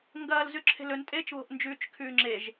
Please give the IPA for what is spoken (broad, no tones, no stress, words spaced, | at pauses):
ŋɡɐːl zʉǁʰe̤lɵntʼeːt͡ʃ βo̤ʔnd͡ʒʉːt͡ʃkʰʉːŋ͡ǁeʒ